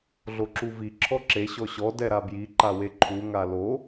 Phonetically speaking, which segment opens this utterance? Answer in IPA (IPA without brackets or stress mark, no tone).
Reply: ɮ